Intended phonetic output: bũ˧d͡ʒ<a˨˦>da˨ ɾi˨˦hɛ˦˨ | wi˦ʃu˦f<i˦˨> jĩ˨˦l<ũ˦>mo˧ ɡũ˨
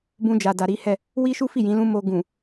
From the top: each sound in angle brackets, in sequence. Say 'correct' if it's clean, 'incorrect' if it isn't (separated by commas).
incorrect, correct, correct